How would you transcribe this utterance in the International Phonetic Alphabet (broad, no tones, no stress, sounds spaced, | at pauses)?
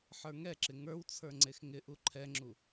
ħ ə˞ ŋ ɛ ǁ ɪ ŋ ə˞ w t͡sʰ ə˞ ŋ͡ǀ e x ŋ ɪ ʔ u ǃʰ ɛ ŋ͡ǁ u